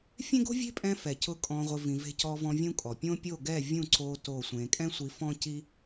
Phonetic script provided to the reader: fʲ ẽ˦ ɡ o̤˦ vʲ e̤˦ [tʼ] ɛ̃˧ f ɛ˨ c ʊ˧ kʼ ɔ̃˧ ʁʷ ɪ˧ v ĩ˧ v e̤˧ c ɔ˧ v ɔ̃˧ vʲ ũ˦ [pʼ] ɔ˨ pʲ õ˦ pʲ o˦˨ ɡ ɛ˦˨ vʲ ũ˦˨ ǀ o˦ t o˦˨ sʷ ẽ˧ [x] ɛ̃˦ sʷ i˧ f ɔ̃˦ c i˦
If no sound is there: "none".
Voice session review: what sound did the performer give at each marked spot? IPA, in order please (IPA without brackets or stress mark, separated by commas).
pʼ, kʼ, kʼ